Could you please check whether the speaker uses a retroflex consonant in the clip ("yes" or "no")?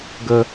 no